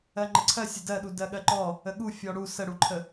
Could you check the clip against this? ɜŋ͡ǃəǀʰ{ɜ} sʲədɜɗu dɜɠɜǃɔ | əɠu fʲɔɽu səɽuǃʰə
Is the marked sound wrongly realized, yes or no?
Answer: no